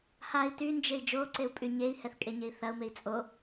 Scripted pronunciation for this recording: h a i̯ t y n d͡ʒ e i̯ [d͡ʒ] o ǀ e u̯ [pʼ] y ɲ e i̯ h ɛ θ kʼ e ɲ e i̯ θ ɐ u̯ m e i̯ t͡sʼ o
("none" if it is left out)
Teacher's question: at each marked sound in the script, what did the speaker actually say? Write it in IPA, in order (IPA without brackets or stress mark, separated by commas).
d͡ʒ, pʼ